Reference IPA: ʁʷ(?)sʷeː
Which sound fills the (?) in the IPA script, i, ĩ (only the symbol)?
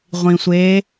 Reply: ĩ